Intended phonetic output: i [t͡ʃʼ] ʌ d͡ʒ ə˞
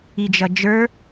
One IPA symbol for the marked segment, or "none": d͡ʒ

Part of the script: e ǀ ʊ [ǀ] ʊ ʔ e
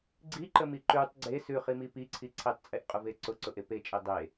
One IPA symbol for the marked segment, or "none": ǀ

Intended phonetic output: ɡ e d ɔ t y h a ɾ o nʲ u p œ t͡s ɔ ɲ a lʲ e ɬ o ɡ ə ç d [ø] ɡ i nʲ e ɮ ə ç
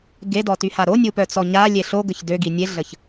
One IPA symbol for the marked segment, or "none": ø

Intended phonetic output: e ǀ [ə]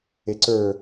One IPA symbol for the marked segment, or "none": ə˞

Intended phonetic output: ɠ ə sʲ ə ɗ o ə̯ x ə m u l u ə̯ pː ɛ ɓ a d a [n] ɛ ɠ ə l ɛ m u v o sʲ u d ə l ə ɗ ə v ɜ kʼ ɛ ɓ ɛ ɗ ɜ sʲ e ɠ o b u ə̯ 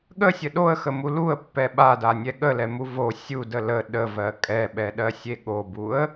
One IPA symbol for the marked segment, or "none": nʲ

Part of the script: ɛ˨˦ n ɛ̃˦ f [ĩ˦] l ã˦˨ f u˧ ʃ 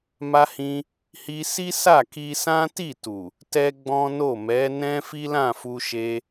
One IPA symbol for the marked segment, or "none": i˦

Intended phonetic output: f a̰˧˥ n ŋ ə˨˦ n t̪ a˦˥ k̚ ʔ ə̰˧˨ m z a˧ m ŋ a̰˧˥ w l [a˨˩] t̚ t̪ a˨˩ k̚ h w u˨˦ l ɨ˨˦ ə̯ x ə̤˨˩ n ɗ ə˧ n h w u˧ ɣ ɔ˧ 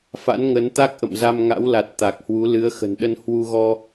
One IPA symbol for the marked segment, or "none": a˨˩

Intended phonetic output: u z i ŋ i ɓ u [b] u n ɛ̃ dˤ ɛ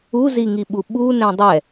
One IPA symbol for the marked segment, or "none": ɓ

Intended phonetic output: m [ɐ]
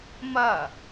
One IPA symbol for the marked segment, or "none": ɐ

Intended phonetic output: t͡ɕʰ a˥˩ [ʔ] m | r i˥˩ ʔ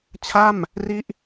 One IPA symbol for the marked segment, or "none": none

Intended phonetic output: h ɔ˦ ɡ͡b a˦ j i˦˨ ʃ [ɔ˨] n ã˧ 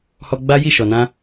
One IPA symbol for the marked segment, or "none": ɔ˨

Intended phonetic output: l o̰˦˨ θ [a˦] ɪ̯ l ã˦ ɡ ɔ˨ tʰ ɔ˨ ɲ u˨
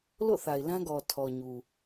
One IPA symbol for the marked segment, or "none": a˨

